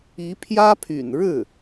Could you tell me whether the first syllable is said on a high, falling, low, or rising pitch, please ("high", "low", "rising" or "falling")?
rising